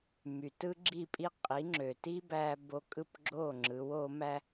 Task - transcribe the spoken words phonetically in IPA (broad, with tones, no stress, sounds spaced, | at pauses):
m y˩ t ɯ˥ ɡ͡ǁ i˥˩ pʼ i˥ qʼ i˩˥ ŋ͡ǁ ø˩ t i˥ b æ˧ b o˧ kʼ ɯ˥˩ p ɡ͡ǁ o˥˩ ŋ͡ǁ ɯ˩˥ w o˩˥ m æ˥